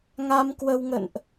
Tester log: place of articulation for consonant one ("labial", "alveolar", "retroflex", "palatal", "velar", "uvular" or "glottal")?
velar